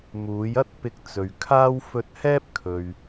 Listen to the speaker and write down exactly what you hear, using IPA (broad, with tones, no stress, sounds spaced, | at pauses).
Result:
m uː˨˧ j ɐ˥ t̚ p ɪ˧ k̚ t͡s ɵ˨ ɥ kʰ aː˥ w f ɵ˧ t̚ h ɛː˥ p̚ kʰ ɵ˧ ɥ